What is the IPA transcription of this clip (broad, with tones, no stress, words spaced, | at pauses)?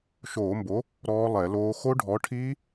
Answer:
ʃoː˧˩˧mbo˨˥ | ɾɔː˦˥lˠɛ˧˩˧loː˦˥ xo˦˥ɖʱɔ˨˥ʈʰiː˦˥